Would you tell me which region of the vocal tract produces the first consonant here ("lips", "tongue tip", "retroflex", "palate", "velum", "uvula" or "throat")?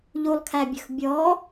palate